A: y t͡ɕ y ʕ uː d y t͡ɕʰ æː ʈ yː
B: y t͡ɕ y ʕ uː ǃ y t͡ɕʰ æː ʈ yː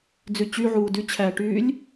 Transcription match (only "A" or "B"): A